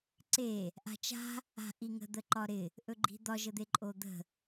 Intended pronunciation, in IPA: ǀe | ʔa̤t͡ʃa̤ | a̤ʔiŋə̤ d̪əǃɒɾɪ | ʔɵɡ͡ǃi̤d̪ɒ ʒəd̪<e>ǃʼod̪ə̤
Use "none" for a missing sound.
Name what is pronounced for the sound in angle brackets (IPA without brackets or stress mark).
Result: e